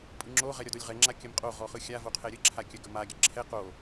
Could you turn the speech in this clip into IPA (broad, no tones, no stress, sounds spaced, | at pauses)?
pʼ ɯ ŋ͡ǁ o ʁ ɛ ɾʲ ɔ d o lʲ ʁ ɛ ŋ͡ǁ a kʲ ə m qʼ o ʁ ɔ χ ɯ xʲ a v o qʰ ɛ ɾʲ ɯ ǁʰ a kʲ ə ɡ ə m a ɡʲ ə ǁʰ ɛ q o